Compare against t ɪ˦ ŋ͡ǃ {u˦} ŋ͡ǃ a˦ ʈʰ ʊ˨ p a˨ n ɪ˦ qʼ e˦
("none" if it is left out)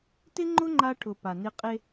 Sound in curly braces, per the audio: ʊ˦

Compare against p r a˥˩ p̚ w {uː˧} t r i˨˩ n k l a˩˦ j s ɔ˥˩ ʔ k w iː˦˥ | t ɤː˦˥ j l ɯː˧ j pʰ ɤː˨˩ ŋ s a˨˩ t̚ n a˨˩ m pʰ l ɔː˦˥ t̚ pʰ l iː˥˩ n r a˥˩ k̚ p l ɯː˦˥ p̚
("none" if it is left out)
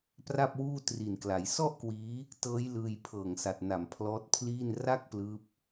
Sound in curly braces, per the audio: uː˥˩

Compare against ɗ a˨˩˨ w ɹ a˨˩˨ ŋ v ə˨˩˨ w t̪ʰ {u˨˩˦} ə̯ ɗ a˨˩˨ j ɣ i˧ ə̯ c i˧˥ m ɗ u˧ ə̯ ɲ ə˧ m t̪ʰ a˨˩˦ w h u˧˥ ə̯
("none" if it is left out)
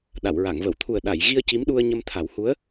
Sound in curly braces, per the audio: u˨˩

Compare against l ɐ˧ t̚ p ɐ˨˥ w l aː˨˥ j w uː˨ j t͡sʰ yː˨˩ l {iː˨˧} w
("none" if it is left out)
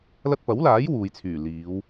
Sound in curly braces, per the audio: iː˨˧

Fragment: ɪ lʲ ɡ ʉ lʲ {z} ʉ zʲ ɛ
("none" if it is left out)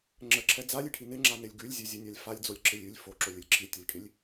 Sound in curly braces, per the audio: zʲ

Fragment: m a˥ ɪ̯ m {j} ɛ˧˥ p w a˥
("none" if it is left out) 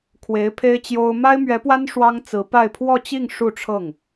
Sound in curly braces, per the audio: ɥ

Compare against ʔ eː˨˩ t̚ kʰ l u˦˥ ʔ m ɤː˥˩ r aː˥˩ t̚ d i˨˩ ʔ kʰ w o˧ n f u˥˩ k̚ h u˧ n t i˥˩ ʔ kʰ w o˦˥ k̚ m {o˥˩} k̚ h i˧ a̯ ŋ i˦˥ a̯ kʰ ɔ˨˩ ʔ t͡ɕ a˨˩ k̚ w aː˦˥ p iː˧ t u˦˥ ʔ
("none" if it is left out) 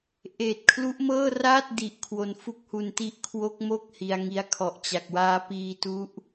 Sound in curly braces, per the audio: o˥˩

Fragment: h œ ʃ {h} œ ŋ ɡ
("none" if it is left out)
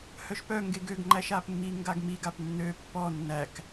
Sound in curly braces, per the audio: p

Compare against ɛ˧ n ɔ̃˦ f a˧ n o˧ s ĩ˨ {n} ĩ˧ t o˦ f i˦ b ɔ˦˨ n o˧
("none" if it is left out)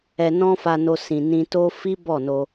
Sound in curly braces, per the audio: n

